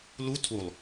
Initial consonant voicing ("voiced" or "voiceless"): voiced